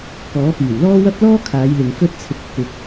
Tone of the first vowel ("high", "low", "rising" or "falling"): rising